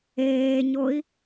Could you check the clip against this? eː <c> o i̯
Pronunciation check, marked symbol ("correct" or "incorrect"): incorrect